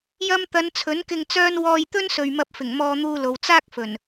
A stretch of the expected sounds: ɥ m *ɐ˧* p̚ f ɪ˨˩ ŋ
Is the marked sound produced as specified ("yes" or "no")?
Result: yes